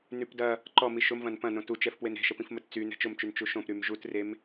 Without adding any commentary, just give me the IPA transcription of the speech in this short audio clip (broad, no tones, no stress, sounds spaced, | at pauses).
n y p d ɐ | ǃ ɔ m i ʃ ʊ m v ɐ̃ n p ɐ̃ n õ t u t͡ʃ ɛ f p w e n ɾ e̤ ʃ ə p ĩ f m ə t t͡s y n ɛ̤ t͡ʃ ʊ m t͡ʃ y n t͡ʃ u ʃ õ p ɾ y m ʒ u t r e m